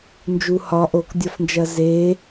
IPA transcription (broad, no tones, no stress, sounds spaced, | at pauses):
n d͡ʒ u h ɒ ʔ o k dʲ ɒ f n d͡ʒ ɐ z e